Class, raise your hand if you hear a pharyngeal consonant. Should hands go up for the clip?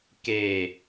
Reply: no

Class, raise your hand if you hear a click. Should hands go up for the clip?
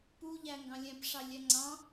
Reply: yes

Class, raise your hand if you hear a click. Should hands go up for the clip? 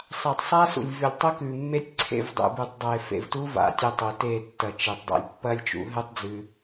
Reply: yes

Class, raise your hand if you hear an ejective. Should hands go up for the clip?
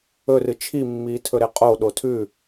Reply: yes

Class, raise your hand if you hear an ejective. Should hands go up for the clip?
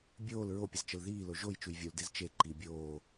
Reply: no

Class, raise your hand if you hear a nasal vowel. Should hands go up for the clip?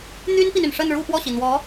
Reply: no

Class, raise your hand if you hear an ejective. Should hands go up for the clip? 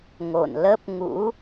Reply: no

